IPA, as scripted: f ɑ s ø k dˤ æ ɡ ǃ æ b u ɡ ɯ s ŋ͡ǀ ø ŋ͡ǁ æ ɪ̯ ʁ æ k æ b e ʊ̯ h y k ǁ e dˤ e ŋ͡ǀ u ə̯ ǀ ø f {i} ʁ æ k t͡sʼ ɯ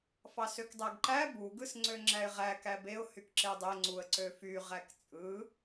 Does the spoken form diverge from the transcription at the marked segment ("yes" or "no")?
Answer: yes